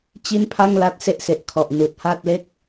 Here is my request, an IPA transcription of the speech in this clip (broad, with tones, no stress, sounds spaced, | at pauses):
t͡ɕ i˥˩ n pʰ a˥˩ ŋ l a˦˥ t̚ s e˦˥ ʔ s e˨˩ ʔ kʰ ɔ˨˩ ʔ n uː˨˩ t̚ h aː˥˩ t̚ l e˥˩ k̚